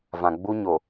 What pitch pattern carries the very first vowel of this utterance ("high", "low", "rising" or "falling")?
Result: low